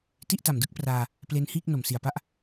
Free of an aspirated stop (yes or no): yes